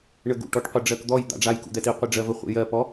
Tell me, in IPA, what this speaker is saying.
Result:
ɳ ə ɡ ṵ ʈ ɔ ʈ qʷ i ɖ͡ʐ ɜ k d̪ ɔ j d̪ a̰ ɖ͡ʐ a j k ṵ d̪ ɛ t i qʷ i ɖ͡ʐ ɜ v ə χʷ ḭ j ɜ p ɔ

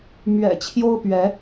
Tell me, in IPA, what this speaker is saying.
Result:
m ɥ ɛ̰˨˩ t͡ɕʰ j o˦ ʊ̯ p ɥ ɛ˨˦

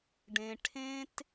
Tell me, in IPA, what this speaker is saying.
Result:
ɖ ẽ˧ ʈʰ ẽ˥ t

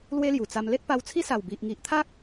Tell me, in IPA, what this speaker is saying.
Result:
l w e˦ l j u˨˩ t͡s a˧ m l e˦ t̚ p a˧ w t͡sʰ i˦ s a˨˩ w b i˨ ʔ ŋ i˨ ʔ t̪ʰ a˦ k̚

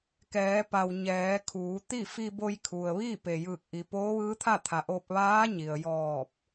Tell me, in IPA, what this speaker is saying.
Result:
k ɛː˩˧ p a˩ w ɲ ɛː˩˧ kʰ uː˩˧ t̪ i˥˨ f i˧ b o˧ j kʰ u˩ ə̯ ʋ iː˥˨ p e˩ j ɯː˧˩ k̚ ʔ i˩ p oː˧˥ ʋ ɯː˧˥ t̪ʰ a˥˨ t̪ʰ a˩ ʔ o˧ p̚ ʋ aː˧˥ ɲ i˩ ə̯ j ɔː˧˩ p̚

